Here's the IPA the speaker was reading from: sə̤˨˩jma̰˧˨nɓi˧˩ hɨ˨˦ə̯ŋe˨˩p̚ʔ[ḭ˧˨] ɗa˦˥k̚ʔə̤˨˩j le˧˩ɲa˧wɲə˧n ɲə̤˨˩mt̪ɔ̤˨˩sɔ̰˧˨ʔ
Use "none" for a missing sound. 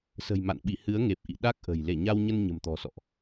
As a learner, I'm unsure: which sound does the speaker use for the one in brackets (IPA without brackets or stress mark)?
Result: ḭ˧˨